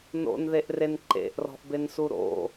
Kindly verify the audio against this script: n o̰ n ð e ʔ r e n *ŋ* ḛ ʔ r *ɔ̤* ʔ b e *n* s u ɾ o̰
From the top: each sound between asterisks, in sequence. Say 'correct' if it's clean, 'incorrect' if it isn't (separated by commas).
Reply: incorrect, correct, correct